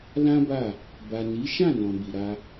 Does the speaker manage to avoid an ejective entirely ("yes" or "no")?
yes